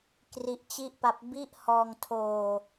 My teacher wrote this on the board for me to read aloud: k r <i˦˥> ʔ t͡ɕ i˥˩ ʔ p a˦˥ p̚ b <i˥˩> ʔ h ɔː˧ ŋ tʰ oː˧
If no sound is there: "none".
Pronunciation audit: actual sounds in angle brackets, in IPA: i˦˥, i˥˩

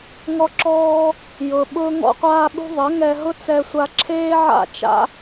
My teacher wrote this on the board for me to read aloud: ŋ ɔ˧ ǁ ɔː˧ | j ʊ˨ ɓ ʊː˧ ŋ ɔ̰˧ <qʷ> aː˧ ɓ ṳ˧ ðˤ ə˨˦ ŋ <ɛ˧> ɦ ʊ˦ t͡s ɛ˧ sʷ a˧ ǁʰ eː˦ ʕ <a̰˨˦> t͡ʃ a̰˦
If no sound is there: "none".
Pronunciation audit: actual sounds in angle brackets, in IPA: qʷ, ɛ˧, a̰˦˨

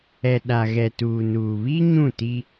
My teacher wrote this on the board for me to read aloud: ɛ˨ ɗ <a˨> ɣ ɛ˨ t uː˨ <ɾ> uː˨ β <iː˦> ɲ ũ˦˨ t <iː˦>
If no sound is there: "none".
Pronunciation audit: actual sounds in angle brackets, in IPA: a˨, n, i˦, i˦

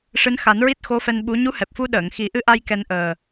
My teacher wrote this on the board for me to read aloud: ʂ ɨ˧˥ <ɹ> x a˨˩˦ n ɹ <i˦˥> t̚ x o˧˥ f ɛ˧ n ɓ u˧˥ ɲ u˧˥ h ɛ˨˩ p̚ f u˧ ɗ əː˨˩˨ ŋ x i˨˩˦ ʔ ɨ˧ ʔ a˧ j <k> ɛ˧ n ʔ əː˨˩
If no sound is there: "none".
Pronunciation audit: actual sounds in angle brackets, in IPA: n, i˦˥, k

